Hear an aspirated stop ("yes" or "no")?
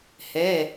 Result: no